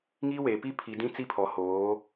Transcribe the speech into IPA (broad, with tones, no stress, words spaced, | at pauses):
ŋiː˦weː˨ pi˦pʰi˨dĩ˦ t͡si˦pʰɔ˨hoː˨˦